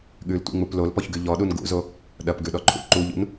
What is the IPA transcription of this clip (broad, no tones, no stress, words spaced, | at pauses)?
ɠʉltʷḭŋ͡mup lolpɔçɡʉ ʎɔɗun ɡṵzo | ɗɐpɡʉɗɔǃʰṵ ǃuʎṵn